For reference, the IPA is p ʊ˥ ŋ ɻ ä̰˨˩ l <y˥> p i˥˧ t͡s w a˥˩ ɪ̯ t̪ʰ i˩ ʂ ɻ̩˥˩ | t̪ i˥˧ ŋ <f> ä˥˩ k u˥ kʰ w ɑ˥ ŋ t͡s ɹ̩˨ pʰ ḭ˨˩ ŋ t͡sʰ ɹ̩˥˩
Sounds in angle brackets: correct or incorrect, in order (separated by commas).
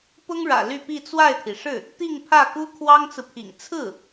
incorrect, incorrect